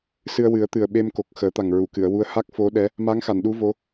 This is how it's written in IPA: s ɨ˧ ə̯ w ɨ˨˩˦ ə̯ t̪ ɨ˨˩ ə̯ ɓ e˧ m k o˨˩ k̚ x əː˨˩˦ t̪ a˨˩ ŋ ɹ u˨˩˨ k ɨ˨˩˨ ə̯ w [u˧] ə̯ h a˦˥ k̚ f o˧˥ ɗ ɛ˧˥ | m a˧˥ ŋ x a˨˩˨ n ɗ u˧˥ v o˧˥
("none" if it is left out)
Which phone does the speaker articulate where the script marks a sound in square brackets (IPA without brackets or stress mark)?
u˧